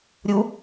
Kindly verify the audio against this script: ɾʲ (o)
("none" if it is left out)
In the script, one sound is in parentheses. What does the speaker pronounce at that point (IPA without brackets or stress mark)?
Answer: u